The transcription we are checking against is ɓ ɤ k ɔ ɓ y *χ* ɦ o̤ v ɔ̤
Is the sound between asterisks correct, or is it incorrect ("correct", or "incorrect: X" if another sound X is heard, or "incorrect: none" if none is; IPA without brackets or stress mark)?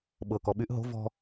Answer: incorrect: ʔ